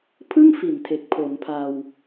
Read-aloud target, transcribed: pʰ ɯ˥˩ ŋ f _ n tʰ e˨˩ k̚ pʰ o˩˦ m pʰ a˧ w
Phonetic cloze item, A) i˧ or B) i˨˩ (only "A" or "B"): B